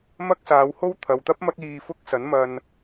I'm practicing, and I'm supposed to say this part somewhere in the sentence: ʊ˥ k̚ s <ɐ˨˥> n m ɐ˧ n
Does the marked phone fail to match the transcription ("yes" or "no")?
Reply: no